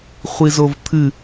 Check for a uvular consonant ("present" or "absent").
present